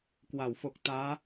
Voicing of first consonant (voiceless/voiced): voiceless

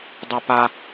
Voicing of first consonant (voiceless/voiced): voiced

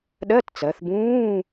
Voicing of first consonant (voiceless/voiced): voiced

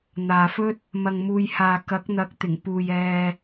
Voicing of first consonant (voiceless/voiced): voiced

